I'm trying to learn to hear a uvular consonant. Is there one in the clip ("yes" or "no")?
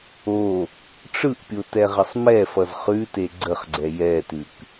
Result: yes